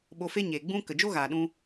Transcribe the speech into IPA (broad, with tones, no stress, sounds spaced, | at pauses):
ɓ o˧ f e˦ ɲ e˨ ɡ͡b ũ˦ k ə˨ d͡ʒ o˦ ɣ aː˨ ɗ ũ˧